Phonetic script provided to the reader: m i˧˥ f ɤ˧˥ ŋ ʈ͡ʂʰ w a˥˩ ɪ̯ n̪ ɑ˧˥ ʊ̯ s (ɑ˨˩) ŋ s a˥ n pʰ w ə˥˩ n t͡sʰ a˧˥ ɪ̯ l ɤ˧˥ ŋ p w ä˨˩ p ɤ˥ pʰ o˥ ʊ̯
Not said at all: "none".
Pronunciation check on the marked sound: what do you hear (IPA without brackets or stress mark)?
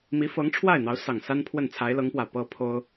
ɑ˨˩